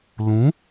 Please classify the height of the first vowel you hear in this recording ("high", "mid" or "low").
high